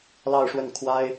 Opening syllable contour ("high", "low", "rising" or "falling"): falling